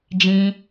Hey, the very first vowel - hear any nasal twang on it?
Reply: yes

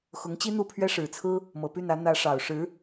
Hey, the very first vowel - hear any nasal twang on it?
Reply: no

